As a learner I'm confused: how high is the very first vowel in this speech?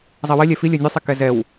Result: mid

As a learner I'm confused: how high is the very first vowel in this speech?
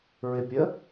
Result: high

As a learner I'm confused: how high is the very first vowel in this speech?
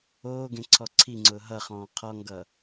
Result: mid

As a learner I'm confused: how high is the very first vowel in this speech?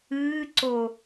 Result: high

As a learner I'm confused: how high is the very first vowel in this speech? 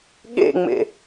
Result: mid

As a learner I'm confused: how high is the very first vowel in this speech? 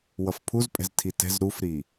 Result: mid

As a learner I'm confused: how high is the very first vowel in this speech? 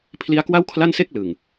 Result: high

